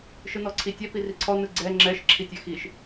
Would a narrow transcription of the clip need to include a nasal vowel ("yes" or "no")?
no